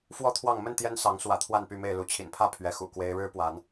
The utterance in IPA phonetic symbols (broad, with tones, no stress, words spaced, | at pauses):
fwɔ˥˨t̪ʰwɑ˥˨ŋ mə˥˨n t̪jɛ˦n sɑ˨˦ŋ swä̰˨˩t̪ʰwa˥˨npy˥˨me˥˨ɪ̯ lu˨˦t͡ɕʰḭ˨˩npʰä˥˨ pʰɥɛ˨˦xṵ˨˩ kwe˦ɪ̯ ɻɻ̩˦pwa˨˦n